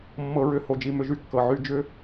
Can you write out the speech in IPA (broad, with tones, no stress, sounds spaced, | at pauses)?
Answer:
mː ɤ˧ ɹ ʏ˧ h o˨ d͡ʒ i˨ m ʏ˧ ʒ y˦ kː ɤ˨ ʕ y˧ d͡ʒ ʏ˦